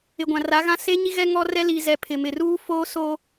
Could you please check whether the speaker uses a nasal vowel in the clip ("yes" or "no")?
yes